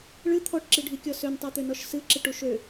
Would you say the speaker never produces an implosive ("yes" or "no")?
yes